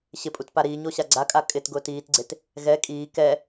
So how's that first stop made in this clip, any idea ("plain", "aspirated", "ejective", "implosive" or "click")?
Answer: ejective